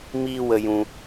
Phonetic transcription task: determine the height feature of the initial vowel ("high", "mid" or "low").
high